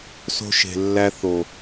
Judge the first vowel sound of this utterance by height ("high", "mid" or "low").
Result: mid